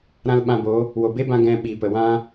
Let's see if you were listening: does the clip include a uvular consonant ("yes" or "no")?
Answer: no